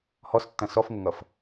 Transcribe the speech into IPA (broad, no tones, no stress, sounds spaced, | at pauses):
h ɔ s tː ɐ̃ s ɔ f ŋ ə ŋ ʌ f